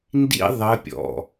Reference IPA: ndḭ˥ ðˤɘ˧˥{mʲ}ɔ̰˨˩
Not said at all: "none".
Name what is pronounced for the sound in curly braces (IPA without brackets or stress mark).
pʲ